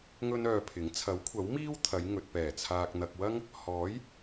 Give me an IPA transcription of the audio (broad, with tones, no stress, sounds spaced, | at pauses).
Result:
ŋ ɵ˥ n œː˧ pʰ ɪ˨˥ ŋ t͡sʰ ɐ˨˥ w kʷʰ ɐ˨˥ w m iː˥ w t̪ʰ ɐ˨˧ j ŋ ɵ˨ t̚ p ɛː˨˩ t͡sʰ aː˨ k̚ n̪ ɐ˨ k̚ w ɐ˥ ŋ | h ɔː˨˥ j